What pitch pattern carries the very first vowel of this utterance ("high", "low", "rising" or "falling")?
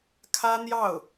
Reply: high